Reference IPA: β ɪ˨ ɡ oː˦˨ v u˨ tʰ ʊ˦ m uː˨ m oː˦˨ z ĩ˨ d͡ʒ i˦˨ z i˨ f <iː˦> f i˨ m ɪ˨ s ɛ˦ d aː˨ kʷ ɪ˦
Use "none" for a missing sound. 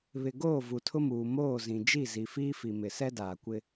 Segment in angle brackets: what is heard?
iː˦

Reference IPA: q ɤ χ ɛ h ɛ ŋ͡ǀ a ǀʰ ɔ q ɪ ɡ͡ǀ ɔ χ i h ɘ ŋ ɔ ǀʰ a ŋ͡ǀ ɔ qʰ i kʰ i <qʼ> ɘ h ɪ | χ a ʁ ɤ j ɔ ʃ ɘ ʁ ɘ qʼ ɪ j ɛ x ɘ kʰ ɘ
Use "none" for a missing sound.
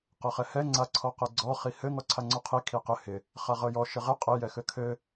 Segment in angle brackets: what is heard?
q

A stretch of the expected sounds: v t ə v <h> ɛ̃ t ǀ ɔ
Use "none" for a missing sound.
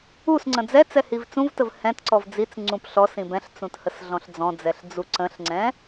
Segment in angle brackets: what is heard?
h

